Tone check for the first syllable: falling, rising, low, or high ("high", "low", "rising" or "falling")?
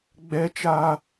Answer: high